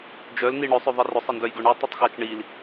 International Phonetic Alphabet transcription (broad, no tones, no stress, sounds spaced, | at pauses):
d͡ʒ œ l n i ɳ œ sˤ œ ðˤ i r ʊ sˤ ɤ n d œ j ɡ œ ɳ u tˤ i tˤ x a t͡ʃ ɳ i l